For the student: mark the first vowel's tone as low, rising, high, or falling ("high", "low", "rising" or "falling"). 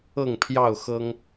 falling